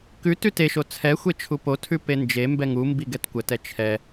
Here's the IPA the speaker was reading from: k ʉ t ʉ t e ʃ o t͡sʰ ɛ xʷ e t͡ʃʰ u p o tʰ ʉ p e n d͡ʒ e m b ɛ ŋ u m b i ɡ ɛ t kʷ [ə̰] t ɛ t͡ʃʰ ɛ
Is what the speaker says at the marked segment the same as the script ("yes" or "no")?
no